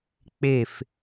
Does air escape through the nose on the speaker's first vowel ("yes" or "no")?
no